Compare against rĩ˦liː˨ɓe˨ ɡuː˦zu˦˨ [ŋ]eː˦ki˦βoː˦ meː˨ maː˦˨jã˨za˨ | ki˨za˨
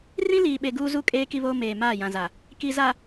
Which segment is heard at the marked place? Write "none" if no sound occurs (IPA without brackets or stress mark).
kʼ